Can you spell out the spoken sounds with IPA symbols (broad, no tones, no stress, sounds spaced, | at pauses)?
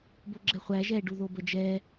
b o ɡ͡ǁ ɛ χʷ æ ʒ ɛ ɖ u ð o b ə d͡ʒ ɛ